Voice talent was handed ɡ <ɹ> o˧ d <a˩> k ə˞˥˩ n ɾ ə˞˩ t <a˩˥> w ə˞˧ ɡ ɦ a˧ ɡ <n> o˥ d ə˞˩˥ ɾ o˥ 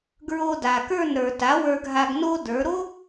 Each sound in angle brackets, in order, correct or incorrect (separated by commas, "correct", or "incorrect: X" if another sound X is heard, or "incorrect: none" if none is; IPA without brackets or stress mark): correct, correct, correct, correct